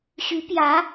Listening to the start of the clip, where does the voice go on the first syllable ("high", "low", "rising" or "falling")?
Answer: rising